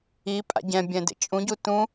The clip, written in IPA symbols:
i pʼ a̰ ɟ ɛ̃ bʲ ɛ̃ d ḛ t͡ʃʼ ũ ɟ u t ũ

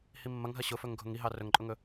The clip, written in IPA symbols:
h i mː ɐ ŋ ɦ ɐ ɕ ʊ f ɵ ŋ ɡʱ ʊ ŋ i ɦ ɑ r ɵ ŋ ǃʼ ʊ ŋ ɵ

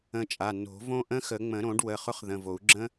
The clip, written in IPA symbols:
ə̃˧ t͡ʃʼ a˩˧˩ n o̤˨˩˦ v õ˦˥ ʔ ə̃˦˥ x ə˨˩˦ ŋ͡m ə̃˨˩˦ ɾ õ˨˩˦ ɖ w ə˩˧˩ χ ʊ˦˥ χ ð ə̃˩˧˩ v o˨˩˦ u̯ ɡ͡ǁ ə̃˦˥

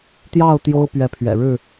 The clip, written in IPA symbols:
t̪ j ɑ˥˨ ʊ̯ t̪ j o˦ ʊ̯ p ɥ ɛ˨˦ pʰ ɥ ɛ̰˨˩ ɻ ɻ̩˥˨

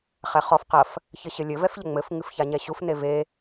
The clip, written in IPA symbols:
χ ɛ χ ɔ f q ɐ f | ç ɘ ɕ ɘ lʲ ɘ v ɛ f ʎ ɘ ŋ͡m ɘ f ŋ ɨ f ç a ɲ ɛ ɕ u f n e v e

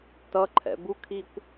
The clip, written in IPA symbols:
t ʌ ǃʰ ɛ̰ b u kʰ i kʷ

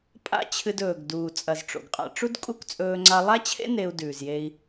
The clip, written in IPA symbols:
pʼ a̰˦ t͡ɕʰ ɨ˧ d ɵː˨ ɡ d uː˨ t͡sʼ ɐ˨ z ʈ͡ʂ o̰˨ ɡ qʼ a̰˧ ʈ͡ʂ u˦ d kʼ u˦ k t͡sʼ ɵː˧ ŋ͡ǀ a˧ lˠ a˦ t͡ɕʰ ḛ˦ n e˧ u̯ d ʉː˨ z j e˧ i̯

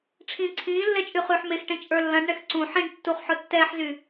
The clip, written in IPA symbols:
ʈ͡ʂʰ ĩː ǀʰ ĩː lː ɛ t͡ʃʼ y χ yː ħ m e x ʈ ẽ t͡ʃʼ ə˞ lː ɐ̃ ɖ ɳ ɛ x ǀ ũ ħ ĩ ɖ tː u χ ħ ʊ tː ɛː ħ z y

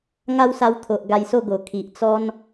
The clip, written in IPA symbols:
ŋ a˦ w s a˧ w t̪ʰ o˨ ʔ ɡ a˧ j s o˥˧ ɡ o˨˩ kʰ i˨ ʔ t͡s ɔ˦ n

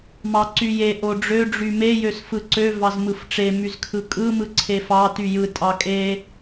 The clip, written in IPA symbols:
m ɑ ǀ y j e ʔ o ɖ͡ʐ ø ɖ͡ʐ y m e j ø s f ɯ ǀ ø v ɑ z m ɯ f ʈ͡ʂ e m y z kʰ ɯ kʼ ɯ m ɯ ǀʰ e f ɑ t y j ɯ tʼ ɑ kʼ e

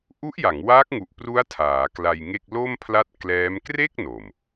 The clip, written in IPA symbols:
ʔ u˦˥ ʔ j a˩˦ ŋ w aː˦˥ k̚ ŋ u˨˩ ʔ p r u˦˥ a̯ tʰ aː˩˦ k l a˧ j ŋ e˥˩ k̚ l o˥˩ m pʰ l a˦˥ t̚ k l ɛː˦˥ m k r e˥˩ k̚ n o˨˩ m

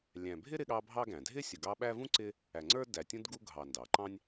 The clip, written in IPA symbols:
lʲ æ̃˨ bʱ ɪ˥ ɾ ɪ˦ ɠ ɑ˦ bʱ ɑ˥ ɡ æ̃˩ dʱ ɪ˥ sʲ ʊ˨ ɡ ɑ˦ ɓ æ˥ v ũ˥ ǀ ɪ˦ | æ˨ ŋ͡ǀ ə˞˥ d æ˨ tʲ ũ˥ d ɡ u˥ ɡʱ ɑ˨ n d ɑ˩ ǃ ɑ̃˥ nʲ

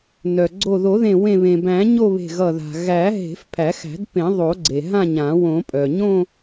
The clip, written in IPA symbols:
n œ˩ ɡ͡ǀ o˧˩ ð o˨˩˦ ð ẽ˧˩ w ẽ˧˩ β ẽ˩ b æ̃˨˩˦ ɲ o˥˧ β e̤˧˩ ɣ ʌ˧˩ ð a̤˩ ɣ æ˨˩˦ ɦ e̤˨˩˦ f pʰ æ˨˩˦ x æ̤˨˩˦ d p ẽ˨˩˦ ðˤ o˨˩˦ ɡ͡ǀ e˩ ɦ ã˥˧ ɲ ã˨˩˦ w õ˨˩˦ pʼ œ˩ ɲ õ˥˧

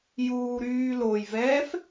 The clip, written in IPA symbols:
j uː ɾ yː l o j v ɛː f

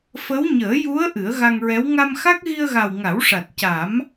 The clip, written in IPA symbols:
f ə˧˥ w ɲ əː˨˩˦ j u˧˥ ə̯ ʔ ɨ˨˩˦ ə̯ ɣ a˧ ŋ ɹ ɛ˧˥ w ŋ a˧ m x a˦˥ k̚ ɣ i˧ ə̯ ɣ a˨˩ w ŋ a˨˩˦ w ʂ a˨˩ t̚ c a˨˩˦ m

